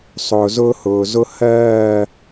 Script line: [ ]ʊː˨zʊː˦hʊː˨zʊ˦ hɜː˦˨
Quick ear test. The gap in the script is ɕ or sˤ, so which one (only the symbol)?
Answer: sˤ